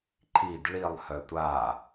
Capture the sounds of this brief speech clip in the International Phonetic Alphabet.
ǃʰ i d ɭ i lˠ h œ tʷ a

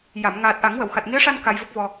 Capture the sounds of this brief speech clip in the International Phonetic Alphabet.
j a˨˩˨ m ŋ aː˨˩ t̚ ʔ a˨˩˦ ŋ w ə˨˩˨ w x a˨˩ t̚ ŋ i˧˥ ə̯ ʂ a˧ n k a˧ j v ə˦˥ k̚ v ɔ˧

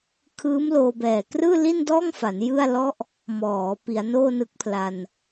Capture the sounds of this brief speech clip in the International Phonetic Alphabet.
kʰ ɯː˦˥ m l oː˧ b ɛː˨˩ k r ɯː˥˩ l i˥˩ n d ɔː˥˩ ŋ f a˩˦ n j ɯ˥˩ a̯ l ɔ˦˥ ʔ | m ɔː˩˦ p i˩˦ a̯ n oː˥˩ n ɯ˦˥ k̚ pʰ l a˧ n

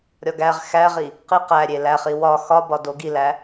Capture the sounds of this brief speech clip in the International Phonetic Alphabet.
ɾʲ ɒ ɡ æ ʁ x æ ʁ i | q i q æ ɾʲ e l æ χ i w ɒ x ɒ b ɒ d o ɡ i l æ

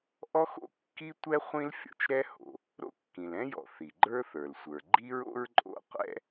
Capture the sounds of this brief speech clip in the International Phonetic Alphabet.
ʔ ɔ˥ x o̰˥ kː i˥ tʷ ɛ˥ χʷ ĩ˥ l fʲ ɔ̰˩ t͡ʃ ɾ ɛ˥ h o̰˩ | ɾ o̰˥ kː ĩ˩ l ɛ̃˥ j ɔ̰˩ θ i˩ ɡ͡ǃ ə˞˥ θ ə˞˩ l sʷ ə˞˩ ɡ͡ǃ i˥ ɹ o̰˥ ɹ ǃʼ o̰˥ qʷ ɛ̰˥

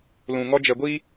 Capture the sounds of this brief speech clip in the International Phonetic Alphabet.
l ũ˨ ŋ ɔ˦ d͡ʒ ɛ˨ ɡʷ i˦

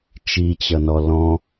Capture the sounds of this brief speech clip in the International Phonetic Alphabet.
t͡ʃ i t͡ɕ ʌ n ɔ l ɔ̃

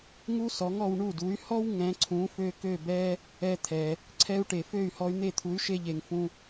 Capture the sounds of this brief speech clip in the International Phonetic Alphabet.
ŋ u˥ s ɔ˩˥ ŋ ɔ˧ w ɳ u˥˩ d u˩˥ y̯ h ɔ˥ w ŋ ɛ̃˩˥ ǀʰ ũ˩˥ f ø˧ k ø˥˩ b ɛ˥ | ɛ˧ t̪ʰ ɛ˩ | ǀʰ ɛ˧ u̯ ʈ e˩ f ø˥˩ y̯ h ɔ˧ y̯ n̪ e˥˩ t̪ʰ u˩˥ y̯ ʃ e˧ ʎ e˩ ŋ f ũ˧

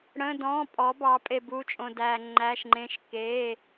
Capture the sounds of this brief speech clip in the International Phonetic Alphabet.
ɽ ə̃˧˥˧ d ɔ̃ː˧˥˧ pʼ ɔ˨˥ b ɑ˨˥ pʼ e˧ b u˧˥˧ t͡ʃʼ õ˧ d æː˧ ŋ͡ǃ æ˧˥˧ ʃ ŋ͡ǃ ẽ˧˥˧ ʃ k e˧˥˧

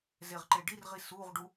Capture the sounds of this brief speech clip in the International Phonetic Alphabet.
z e ʁ ǃ e ɖ i r ʁ i s u ʁ ɖ u

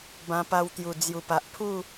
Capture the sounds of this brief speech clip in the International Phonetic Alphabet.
b ã˧ p a˧ w t̪ j u˨˩ d͡z j u˨˩ p a˨ ʔ pʰ u˥˧

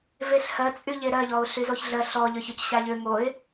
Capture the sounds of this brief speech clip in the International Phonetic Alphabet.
v e ɬ h ɜ t͡sʼ y ʎ e ɾ ɜ ʎ ɔ ʊ̯ ɬ y z o ç ɮ ɜ ɬ ɔ ʎ ʏ ç ʏ c ɕ a ʎ ʏ ŋ o ɪ̯

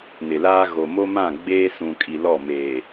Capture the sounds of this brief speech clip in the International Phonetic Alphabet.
n ɪ˨ l aː˦ ɣ o˨ m o˦ m ã˦˨ ɡ͡b eː˦ s ũ˨ kʼ i˨ l ɔ˦˨ m eː˨

